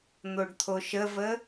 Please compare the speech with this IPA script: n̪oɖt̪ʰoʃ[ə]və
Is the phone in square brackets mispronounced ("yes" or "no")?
no